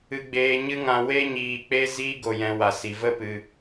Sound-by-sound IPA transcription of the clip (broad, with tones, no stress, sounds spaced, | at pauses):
ɨ˧ ɡ͡b eː˧ ɲ ɨ˦ ŋ ã˧ w e˦ ɲ iː˧ k͡p e˦ z iː˦ ɡ o˧ j ɛ̃˧ w a˧ s i˧ v ə˦ p ɨ˧